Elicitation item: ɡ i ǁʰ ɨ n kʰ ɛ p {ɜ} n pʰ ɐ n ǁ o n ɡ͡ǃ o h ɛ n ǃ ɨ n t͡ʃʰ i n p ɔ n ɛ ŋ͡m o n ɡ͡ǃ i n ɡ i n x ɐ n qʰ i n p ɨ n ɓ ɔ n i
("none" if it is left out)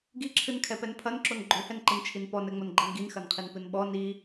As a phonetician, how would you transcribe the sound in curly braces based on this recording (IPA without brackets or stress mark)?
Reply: ɛ